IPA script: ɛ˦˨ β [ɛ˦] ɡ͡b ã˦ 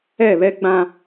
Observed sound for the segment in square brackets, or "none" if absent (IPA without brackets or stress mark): ɛ˦